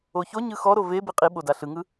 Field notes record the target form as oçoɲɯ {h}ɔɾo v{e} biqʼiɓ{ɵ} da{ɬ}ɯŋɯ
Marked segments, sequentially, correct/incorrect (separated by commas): incorrect, correct, incorrect, correct